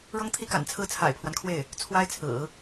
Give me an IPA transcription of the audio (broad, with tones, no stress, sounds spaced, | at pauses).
ɻ ɤ˥ ŋ t̪ʰ i˥ k a̰˨˩ n t͡sʰ ɹ̩˥˩ t͡sʰ a̰˨˩ ɪ̯ pʰ w a˦ n kʰ w e˥˩ ɪ̯ | t͡sʰ w a˥ ɪ̯ t͡sʰ ɹ̩˨˩˦